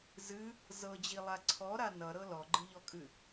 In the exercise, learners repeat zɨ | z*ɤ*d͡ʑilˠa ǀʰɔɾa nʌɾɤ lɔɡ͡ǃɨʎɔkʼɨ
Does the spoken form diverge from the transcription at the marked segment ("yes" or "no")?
no